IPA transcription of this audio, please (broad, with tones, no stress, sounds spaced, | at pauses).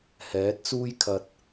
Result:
h ɛː˨˥ t̚ t͡s uː˥ j kʰ ɐ˧ t̚